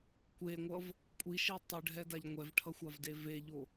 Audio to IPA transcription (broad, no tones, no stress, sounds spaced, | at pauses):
kʷ e ŋʷ ʌ v | kʷʼ i ʃ i tˤ ɯ ɖʱ ɛ d a ʎ ŋʷ ɛ v ʈʰ ʌ xʷ a v d e v e ʎ o